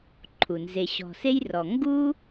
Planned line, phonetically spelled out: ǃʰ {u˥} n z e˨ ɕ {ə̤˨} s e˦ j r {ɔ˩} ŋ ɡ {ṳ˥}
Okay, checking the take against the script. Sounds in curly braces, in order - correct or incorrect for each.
incorrect: u˩, incorrect: ɔ̤˨, incorrect: ɔ˨, incorrect: u˥

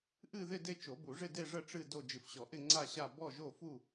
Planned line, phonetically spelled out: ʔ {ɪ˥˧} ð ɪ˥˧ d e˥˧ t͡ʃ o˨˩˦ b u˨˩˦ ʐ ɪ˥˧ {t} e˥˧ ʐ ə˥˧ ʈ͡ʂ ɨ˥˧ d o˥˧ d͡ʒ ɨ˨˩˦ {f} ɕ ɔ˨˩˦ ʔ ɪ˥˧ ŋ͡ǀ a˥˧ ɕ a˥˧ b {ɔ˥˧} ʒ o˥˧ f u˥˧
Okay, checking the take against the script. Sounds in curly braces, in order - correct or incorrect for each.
incorrect: ɨ˥˧, incorrect: d, correct, correct

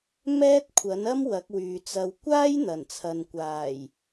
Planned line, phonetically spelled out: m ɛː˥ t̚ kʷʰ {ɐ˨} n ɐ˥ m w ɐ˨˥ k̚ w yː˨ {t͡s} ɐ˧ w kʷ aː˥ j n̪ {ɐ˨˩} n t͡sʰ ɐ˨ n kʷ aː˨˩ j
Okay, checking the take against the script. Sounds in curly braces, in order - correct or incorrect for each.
incorrect: ɐ˨˥, correct, correct

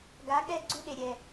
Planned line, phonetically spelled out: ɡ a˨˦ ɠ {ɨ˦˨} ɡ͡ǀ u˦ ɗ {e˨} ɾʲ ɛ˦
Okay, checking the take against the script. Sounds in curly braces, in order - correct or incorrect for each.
incorrect: ɛ˦˨, correct

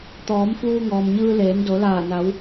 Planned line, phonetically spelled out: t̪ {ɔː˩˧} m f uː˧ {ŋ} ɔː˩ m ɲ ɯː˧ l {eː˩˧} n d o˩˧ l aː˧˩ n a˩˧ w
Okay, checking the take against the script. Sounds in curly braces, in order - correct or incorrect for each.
correct, correct, correct

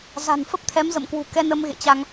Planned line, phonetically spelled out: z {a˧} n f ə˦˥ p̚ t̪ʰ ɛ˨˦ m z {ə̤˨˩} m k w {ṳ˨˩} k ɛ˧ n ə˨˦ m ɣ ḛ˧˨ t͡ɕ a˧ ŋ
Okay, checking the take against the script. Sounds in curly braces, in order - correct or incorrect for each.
incorrect: a̤˨˩, incorrect: ə̰˧˨, correct

